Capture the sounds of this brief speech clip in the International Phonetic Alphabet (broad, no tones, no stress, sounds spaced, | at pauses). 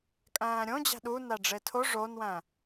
kʼ æ̃ː ɾʲ õ d͡ʑ æ̤ ɗ u n æ ɖ͡ʐ e tʰ o ʐ o n w æ̃